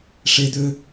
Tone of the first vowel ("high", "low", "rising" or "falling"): high